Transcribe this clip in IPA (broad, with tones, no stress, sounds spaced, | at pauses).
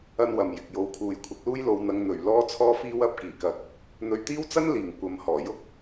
ɐ˥ n w ɐ˨ m j ɪ˨ k̚ j o˨ w kʰ uː˨ j kʷʰ ɪ˨˥ k̚ l uː˥ j l o˧ w n̪ ɐ˧ ŋ n̪ ɵ˨˩ ɥ l ɔː˥ t͡sʰ ɔː˥ f iː˥ w ɐ˧ p̚ k iː˨˩ k ɐ˨˥ k̚ | n̪ ɵ˧ ɥ t̪ iː˥ w t͡s ɐ˥ n l iː˨˩ ŋ kʷ ɐ˨ m h ɔː˨˩ j ʊ˥ k̚